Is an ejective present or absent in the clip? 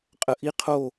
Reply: present